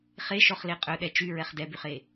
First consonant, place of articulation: uvular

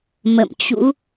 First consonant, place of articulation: labial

